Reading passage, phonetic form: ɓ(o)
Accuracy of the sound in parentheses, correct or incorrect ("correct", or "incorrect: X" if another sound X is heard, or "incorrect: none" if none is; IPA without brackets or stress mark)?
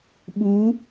incorrect: u